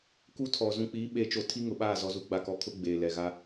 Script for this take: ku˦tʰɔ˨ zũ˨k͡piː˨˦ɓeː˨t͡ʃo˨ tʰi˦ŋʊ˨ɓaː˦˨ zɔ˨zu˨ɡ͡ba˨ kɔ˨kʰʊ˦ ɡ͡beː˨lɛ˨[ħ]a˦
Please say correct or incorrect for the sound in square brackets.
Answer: incorrect: ɣ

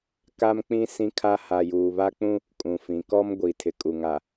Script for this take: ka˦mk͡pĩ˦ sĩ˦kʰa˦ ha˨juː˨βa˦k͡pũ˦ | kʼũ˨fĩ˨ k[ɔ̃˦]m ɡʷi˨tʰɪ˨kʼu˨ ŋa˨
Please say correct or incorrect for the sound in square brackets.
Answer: incorrect: ɔ˦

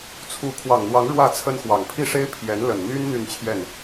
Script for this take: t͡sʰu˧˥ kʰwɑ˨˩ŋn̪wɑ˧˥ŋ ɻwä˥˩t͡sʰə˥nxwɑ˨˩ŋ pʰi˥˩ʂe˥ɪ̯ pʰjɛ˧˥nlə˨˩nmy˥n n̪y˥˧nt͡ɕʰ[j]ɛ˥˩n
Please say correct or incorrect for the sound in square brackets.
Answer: correct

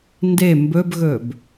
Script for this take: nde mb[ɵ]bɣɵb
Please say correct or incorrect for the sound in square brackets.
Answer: correct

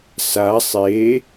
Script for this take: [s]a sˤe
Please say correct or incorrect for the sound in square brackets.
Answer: correct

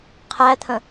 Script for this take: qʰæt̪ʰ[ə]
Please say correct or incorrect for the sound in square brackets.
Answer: incorrect: ə̃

